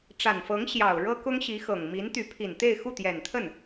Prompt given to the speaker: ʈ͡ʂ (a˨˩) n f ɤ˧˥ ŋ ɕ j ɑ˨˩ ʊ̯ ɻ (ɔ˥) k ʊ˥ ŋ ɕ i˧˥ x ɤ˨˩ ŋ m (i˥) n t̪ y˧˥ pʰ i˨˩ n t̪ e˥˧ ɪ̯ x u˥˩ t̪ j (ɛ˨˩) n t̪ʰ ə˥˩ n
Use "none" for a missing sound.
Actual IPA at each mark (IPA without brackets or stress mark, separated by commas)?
a˨˩, ɤ˥, i˧˥, ɛ˨˩